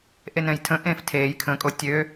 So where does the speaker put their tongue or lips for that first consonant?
throat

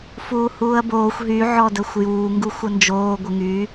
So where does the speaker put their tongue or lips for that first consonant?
lips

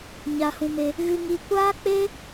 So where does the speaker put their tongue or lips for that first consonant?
palate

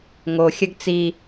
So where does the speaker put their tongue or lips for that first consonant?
velum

